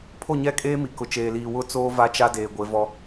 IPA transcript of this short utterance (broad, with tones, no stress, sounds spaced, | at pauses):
pʰ o˦˨ ɲ ɛ˦ kʼ eː˦ m i˨ k ʊ˨ t͡ʃ eː˨ l iː˨ w ʊ˦ t͡s oː˦ v a˦ t͡ʃ a˦ d eː˨ ɡʷ e˨˦ v ɔ˦